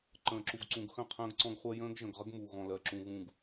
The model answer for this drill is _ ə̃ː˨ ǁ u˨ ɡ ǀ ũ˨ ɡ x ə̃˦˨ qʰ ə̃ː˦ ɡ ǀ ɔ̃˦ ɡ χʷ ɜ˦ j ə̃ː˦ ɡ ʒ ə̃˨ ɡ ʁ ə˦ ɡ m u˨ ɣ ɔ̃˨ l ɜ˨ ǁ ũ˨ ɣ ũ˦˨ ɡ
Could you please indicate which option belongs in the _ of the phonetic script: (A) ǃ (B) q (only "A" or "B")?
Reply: A